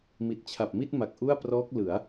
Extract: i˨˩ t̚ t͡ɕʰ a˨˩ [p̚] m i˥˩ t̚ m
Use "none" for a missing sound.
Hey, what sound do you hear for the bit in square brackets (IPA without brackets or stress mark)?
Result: p̚